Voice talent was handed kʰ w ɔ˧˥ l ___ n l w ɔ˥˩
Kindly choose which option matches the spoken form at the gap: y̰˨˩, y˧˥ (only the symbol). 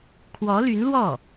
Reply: y˧˥